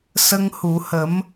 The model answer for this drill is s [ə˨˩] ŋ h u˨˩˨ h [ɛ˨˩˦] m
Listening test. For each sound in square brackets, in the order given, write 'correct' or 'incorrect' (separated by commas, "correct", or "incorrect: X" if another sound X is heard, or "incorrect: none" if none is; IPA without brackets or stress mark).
incorrect: ə˧, incorrect: ə˨˩˦